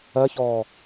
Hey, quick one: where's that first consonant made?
palate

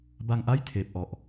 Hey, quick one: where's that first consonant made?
lips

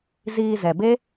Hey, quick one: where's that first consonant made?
tongue tip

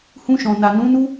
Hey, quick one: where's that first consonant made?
throat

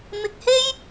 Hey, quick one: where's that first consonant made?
lips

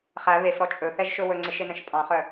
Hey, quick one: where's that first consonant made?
uvula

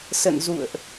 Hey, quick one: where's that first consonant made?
tongue tip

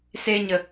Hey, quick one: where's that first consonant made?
tongue tip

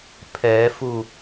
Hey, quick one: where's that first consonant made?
lips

